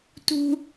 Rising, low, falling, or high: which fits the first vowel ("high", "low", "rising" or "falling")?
high